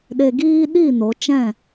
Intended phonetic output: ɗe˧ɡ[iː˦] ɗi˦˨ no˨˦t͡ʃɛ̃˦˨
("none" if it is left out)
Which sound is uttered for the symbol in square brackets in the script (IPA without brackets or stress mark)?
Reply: iː˦